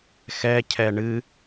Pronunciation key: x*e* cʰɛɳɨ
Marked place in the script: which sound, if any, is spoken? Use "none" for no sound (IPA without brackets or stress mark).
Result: ɛ